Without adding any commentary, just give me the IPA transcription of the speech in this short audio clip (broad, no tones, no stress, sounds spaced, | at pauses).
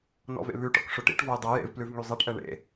n ɔ̰ v ḛ β ʉ ʈ ɔ̰ k ʂ ɵ ʈ ḭ ʈ v ɔ j dˤ ɛ j ḛ v p l ʉ v ŋ y zˤ e ʈ ʔ ɛ ɳ ḛ